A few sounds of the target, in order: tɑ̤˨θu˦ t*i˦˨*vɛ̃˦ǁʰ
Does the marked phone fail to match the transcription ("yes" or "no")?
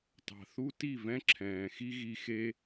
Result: no